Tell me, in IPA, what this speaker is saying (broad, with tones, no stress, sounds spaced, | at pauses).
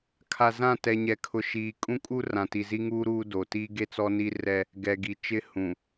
kʰ a˨ z ã˦˨ t ɛ˨ ɲ ɛ˨ kʰ ʊ˨ ʃ iː˨ kʼ ũ˦ kʼ u˦ r ã˨ t i˨ z i˦ ŋ uː˦ ɾ uː˦ d o˨ t i˦ ɡ e˦ t͡s ɔ˦ n i˦ r ɛ˦ | ɡ ɛ˨ ɡ i˨ t͡ʃ ɪ˦ h ũ˨